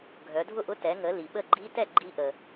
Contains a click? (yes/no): yes